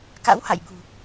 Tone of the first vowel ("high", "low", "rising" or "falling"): rising